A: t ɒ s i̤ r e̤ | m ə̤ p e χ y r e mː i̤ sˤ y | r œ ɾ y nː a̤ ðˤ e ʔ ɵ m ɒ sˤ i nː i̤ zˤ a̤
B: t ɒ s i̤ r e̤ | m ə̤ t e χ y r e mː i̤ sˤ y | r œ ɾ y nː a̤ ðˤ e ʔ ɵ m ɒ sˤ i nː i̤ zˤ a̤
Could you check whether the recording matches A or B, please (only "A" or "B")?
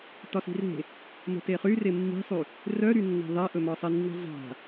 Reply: B